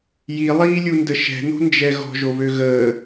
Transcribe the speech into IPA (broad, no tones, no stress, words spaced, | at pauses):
jilˠiːlʲundə ʃɛ̤no̤nd͡ʒɛ ɣɔ̤ʒoβø ɣəː